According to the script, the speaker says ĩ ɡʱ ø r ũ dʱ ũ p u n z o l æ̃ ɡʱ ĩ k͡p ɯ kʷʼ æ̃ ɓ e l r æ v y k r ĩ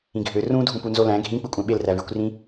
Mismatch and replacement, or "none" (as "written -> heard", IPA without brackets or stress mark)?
k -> kʷ